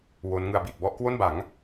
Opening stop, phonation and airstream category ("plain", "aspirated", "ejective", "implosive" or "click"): plain